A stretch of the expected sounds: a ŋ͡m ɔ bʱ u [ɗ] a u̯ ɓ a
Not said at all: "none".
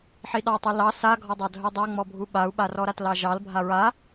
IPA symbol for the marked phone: ɓ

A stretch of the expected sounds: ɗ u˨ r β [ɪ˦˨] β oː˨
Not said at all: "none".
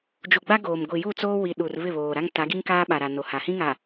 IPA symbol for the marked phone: ɪ˦˨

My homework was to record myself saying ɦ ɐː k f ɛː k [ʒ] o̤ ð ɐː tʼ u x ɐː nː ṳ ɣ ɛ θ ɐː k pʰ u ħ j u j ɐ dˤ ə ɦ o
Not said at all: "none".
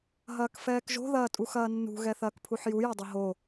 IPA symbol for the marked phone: ʒ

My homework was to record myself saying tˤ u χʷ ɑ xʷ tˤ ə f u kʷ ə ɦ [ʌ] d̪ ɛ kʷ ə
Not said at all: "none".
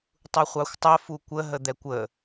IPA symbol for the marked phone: ə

